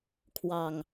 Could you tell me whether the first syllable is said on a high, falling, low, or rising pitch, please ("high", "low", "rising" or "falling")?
low